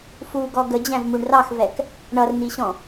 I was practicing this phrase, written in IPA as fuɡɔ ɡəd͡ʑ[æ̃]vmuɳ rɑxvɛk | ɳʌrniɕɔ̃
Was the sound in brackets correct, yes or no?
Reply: yes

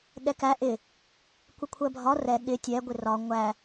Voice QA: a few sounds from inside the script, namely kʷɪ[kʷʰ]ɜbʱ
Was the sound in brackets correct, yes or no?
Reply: yes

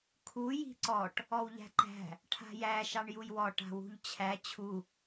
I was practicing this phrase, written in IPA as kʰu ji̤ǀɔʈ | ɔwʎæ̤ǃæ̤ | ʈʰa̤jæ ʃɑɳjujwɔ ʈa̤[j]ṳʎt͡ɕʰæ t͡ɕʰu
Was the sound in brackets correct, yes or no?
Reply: no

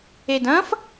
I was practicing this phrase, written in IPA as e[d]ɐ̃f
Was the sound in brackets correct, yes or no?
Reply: yes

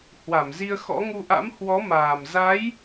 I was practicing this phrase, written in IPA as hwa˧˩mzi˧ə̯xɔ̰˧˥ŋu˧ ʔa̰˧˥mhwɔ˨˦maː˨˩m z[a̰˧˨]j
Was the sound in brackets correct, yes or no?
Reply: no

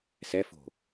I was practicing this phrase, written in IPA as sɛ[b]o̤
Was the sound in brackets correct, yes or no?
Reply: no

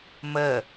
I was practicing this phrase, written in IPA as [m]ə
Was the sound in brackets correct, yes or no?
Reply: yes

